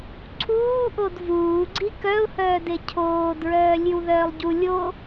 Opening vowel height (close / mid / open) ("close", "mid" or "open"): close